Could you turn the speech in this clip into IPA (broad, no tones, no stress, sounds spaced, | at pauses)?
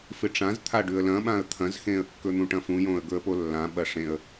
f ɨ ʈ͡ʂ ã z t̪ʰ a ɖ ʉ ə̯ l ɐ̃ ɓ ã ə̯ t̪ʰ ɐ̃ z x ẽ ə̯ kː ɵ n̪ ũ ʈ ɐ̃ f ũ j õ ə̯ ɡ ɵ ə̯ p o lː ã ɓ ɐ ʂ ẽ ə̯